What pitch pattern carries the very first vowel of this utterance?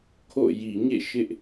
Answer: falling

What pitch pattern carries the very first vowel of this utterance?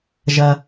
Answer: low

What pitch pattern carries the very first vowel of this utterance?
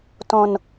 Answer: low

